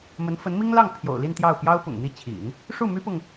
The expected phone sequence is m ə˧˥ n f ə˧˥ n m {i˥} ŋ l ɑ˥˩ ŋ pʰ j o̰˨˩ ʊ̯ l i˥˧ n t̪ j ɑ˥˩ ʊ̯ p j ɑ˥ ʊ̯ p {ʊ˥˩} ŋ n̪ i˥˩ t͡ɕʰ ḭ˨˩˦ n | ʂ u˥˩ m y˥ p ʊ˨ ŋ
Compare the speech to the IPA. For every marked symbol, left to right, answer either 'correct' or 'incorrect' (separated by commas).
correct, incorrect